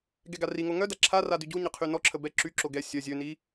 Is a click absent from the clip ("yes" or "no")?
no